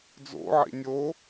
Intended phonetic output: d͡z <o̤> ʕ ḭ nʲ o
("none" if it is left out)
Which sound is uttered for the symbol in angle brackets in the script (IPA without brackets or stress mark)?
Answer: o̰